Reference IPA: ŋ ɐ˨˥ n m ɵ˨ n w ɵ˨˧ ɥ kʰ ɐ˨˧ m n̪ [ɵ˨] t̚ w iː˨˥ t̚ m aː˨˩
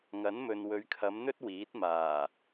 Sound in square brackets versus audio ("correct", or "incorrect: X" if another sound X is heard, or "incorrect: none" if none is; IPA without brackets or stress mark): incorrect: ɵ˥